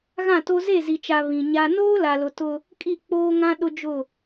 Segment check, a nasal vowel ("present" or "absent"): present